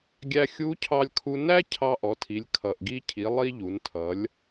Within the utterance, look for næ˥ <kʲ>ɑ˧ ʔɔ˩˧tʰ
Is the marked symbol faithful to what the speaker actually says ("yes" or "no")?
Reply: no